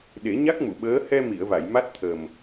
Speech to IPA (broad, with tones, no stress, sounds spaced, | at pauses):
ɗ e˨˩˦ ɲ a˦˥ k̚ m u˨˩˨ ɓ əː˧˥ h ɛ˧ m i˨˩˨ ə̯ v a˨˩˨ j m a˦˥ t̚ t̪ʰ ə˨˩ m